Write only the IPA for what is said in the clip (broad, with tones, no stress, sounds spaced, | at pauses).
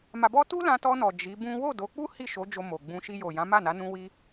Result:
m a˧ b ɔ˦ t u˦ l ã˧ t ɔ˧ n ɔ˨ d͡ʒ i˨˦ b ũ˦ w o˦˨ d o˨˦ k͡p u˦ h i˦˨ ʃ o˨˦ d͡ʒ o˧ m o˨ ɡ͡b ũ˧ ʃ i˧ j o˨ j ã˨˦ m a˦˨ n a˨˦ n ũ˦ w i˦